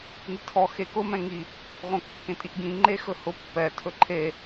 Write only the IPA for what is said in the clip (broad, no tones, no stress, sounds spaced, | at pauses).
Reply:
n i tʰ ɔ x e k ʊ m ɛ̃ ŋ i | ʁ õ kː ẽ tʼ i ʔ ɡ ĩ ŋ͡ǃ e x ɵ h ʊ pː ɛ tʰ ɵ ǃʰ e